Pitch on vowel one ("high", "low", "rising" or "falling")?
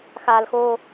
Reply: high